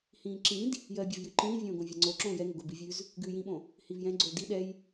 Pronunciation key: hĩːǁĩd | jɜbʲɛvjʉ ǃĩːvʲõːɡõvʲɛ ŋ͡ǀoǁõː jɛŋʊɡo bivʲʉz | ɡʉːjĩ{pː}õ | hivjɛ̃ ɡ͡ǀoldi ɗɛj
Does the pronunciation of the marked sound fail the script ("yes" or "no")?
yes